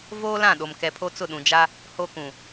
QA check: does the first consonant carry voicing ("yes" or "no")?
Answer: yes